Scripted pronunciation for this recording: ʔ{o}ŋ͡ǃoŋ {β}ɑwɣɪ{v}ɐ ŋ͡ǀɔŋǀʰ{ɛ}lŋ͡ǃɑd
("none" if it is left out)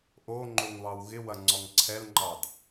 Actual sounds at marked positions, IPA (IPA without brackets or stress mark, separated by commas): o, β, w, ɛ